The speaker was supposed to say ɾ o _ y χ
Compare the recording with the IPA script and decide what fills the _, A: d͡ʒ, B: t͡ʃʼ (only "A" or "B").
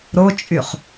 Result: B